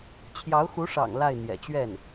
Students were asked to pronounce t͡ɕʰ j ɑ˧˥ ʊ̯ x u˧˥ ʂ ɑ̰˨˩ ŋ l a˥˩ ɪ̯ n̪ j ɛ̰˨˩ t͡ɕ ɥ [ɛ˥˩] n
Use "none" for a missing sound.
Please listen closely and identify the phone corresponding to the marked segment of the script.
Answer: ɛ˥˩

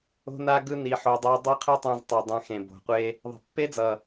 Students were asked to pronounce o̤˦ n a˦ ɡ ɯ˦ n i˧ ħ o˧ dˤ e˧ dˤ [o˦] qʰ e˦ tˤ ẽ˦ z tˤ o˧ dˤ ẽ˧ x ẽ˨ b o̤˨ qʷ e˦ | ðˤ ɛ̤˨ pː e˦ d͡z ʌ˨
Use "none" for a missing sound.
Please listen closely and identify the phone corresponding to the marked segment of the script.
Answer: o˦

